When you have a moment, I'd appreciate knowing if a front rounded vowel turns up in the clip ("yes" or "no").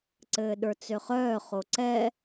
yes